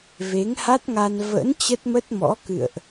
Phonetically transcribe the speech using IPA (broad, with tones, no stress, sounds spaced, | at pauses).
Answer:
v e˨˦ ŋ h a˦˥ t̚ ŋ a˧ n v ə̰˧˥ n t͡ɕ ə˦˥ t̚ m ə˦˥ t̚ m ɔ̰˧˥ k ɨ̰˧˨ ə̯ ʔ